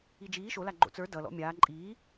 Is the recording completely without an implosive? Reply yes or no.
yes